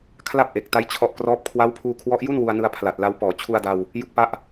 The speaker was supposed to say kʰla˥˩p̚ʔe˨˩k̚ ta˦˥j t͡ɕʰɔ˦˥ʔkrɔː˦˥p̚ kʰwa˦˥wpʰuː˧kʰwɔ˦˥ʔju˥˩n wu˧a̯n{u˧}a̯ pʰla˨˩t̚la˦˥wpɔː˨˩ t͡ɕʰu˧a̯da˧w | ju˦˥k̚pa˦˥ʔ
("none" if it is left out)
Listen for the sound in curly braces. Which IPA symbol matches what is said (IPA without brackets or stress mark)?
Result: ɯ˧